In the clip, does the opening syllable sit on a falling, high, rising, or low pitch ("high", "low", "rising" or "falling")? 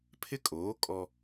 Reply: high